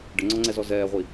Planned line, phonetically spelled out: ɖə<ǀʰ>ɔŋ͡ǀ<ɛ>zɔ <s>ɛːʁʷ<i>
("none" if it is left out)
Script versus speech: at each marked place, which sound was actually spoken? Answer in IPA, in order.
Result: ŋ͡ǀ, ɛ, z, i

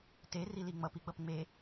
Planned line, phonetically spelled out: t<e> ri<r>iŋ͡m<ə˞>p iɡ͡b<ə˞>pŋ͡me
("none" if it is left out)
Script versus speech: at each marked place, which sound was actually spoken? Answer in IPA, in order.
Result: e, l, ʌ, ʌ

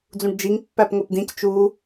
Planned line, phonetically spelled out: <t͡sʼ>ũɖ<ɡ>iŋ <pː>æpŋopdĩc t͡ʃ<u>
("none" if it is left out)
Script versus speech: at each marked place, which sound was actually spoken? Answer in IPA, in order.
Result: d͡z, d͡ʒ, pː, u

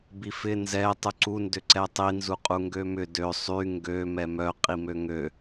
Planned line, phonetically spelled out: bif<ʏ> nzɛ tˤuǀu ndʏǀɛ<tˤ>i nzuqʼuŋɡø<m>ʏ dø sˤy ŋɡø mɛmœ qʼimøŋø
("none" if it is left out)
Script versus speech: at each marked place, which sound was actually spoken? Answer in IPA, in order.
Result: ɪ, tˤ, m

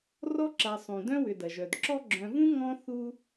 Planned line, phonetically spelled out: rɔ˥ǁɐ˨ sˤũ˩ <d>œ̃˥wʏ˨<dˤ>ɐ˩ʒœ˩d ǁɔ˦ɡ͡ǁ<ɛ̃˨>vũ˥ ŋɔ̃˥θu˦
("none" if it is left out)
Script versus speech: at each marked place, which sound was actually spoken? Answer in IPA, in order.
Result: d, d, œ̃˨

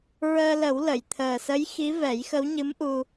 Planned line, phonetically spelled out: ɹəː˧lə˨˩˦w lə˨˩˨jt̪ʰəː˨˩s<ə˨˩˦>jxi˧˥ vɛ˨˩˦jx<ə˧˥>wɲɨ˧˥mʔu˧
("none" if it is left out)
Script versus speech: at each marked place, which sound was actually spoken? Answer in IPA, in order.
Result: ə˧˥, ə˧˥

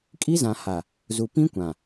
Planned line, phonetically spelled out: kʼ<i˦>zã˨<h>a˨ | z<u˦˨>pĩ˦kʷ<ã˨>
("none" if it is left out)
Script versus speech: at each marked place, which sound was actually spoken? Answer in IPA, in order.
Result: i˦, h, u˨, ã˨

